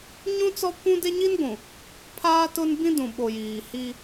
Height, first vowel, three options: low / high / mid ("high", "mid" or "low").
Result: high